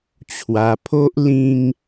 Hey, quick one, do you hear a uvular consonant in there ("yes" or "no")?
no